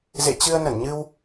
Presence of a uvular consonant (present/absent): absent